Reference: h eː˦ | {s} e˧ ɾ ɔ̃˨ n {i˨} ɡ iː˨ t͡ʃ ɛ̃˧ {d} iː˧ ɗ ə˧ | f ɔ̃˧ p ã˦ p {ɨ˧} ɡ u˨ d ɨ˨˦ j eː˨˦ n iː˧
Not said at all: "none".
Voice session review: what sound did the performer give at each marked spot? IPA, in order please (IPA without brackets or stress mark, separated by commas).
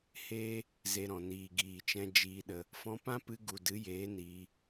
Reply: z, iː˨, d͡ʒ, ɨ˧